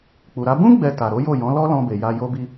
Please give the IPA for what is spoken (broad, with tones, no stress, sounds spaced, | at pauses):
k͡p u˨ ɾ a˨˦ b ũ˦ ɡ͡b ɛ˧ t a˨ ɾ o˨˦ j o˦˨ j ɔ̃˨˦ l ɔ˦ l ɔ̃˧ b e˨ j a˧ j o˦ b i˦